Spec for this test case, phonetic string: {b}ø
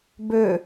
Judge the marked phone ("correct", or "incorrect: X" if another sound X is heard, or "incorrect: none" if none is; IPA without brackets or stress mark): correct